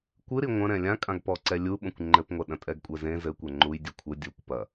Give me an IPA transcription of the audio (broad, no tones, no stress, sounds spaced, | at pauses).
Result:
kʷ ɨ ɾ i ŋʷ ɐ̃ ɾ ɛ̃ lʲ ã kʼ ã ɡ p ɔ ǀ ɛ lʲ u ɓ õ kʷ ŋ͡ǃ ɘ p ŋʷ ɛ ɗ ɐ̃ tʼ ɛ ɡ kʷʼ ɛ z ẽ z ɘ kʷ ɛ ŋ͡ǃ u j dʲ e kʷʰ ɘ dʲ u kʷ p ɐ